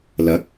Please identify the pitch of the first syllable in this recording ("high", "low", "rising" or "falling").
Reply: rising